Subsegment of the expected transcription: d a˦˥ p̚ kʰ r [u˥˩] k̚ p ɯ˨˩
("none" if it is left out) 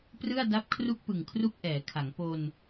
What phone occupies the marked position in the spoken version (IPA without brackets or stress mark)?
u˥˩